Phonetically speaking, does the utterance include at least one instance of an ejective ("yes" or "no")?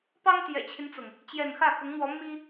no